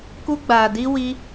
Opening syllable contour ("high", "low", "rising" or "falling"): high